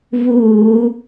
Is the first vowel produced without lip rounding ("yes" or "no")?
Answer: no